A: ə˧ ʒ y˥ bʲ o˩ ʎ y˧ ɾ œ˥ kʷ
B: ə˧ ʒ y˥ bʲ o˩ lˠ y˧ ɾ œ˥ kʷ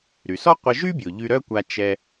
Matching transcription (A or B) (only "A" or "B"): A